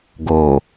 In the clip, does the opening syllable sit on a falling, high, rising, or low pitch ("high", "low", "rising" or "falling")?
low